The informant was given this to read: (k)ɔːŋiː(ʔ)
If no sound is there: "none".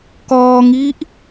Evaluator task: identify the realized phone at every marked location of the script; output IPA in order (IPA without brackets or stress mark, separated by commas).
k, ʔ